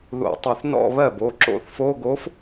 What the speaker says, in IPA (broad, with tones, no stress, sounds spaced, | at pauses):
ð o̰˧˩˧ tˤ ə˧˩˧ θ n ɔ̰˥˧ β ɜ˥˩ b o˩˧˩ ǁ o̰˧˥ θ f o˧˥˧ ɡ o˧˥ f